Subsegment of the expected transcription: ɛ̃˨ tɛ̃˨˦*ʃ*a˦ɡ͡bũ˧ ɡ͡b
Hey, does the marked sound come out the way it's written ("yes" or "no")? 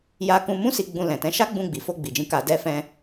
yes